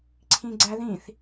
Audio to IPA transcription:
ǀʰ ĩ ɡ͡ǀ æ ð ĩ θ

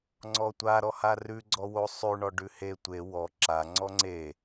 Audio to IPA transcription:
ŋ͡ǀ ɔ tʷ a ɾ ɔ h a r ʉ ɡ͡ǀ ɔ w o sˤ ʉ ɳ ɔ ɖ ʉ h e tʷ e w ɔ ǁ a ŋ͡ǀ ɔ ŋ͡ǀ e

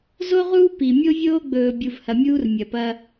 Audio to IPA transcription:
z o˦ ʁ uː˦ p i˨ mʲ o˦ vʲ oː˦ ɡ͡b ɵː˨ bʲ u˨ v h ɐ˨ mʲ uː˦ r mʲ ɐ˨ p ɐ˦

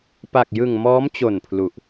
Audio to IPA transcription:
p a˨˩ k̚ j ɯ˨˩ ŋ m ɔː˦˥ m t͡ɕ o˨˩ n pʰ l u˨˩ ʔ

